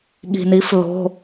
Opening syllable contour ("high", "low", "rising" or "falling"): low